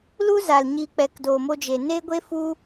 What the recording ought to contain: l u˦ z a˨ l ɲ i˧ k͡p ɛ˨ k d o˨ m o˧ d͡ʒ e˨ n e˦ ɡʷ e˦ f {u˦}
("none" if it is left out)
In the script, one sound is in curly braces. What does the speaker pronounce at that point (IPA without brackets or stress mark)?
u˦